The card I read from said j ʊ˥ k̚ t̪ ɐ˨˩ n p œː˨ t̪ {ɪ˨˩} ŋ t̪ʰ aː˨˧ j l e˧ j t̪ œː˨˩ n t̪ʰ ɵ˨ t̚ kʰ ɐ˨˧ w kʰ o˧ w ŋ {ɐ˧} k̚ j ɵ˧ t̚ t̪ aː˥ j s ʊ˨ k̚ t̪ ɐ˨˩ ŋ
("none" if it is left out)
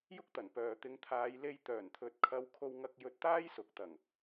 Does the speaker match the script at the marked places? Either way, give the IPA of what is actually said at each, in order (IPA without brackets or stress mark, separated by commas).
ɪ˨˧, ɐ˧